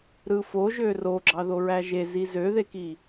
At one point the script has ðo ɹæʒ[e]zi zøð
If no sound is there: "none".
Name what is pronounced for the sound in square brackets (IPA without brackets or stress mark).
e